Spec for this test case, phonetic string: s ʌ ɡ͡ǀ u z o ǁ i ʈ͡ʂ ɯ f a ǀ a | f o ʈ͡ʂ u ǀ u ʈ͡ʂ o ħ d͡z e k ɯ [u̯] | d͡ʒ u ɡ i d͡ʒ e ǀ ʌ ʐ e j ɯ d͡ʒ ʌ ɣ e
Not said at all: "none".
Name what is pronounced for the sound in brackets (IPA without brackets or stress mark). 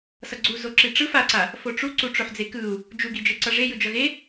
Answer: u̯